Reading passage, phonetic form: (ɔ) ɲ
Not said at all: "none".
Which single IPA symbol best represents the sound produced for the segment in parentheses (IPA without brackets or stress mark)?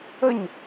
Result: ə